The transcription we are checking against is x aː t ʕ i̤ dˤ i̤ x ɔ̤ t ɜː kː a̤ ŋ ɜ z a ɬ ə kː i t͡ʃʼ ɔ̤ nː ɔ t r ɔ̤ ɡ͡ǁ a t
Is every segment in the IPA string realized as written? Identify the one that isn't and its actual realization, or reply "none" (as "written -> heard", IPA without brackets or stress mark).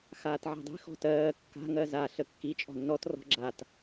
none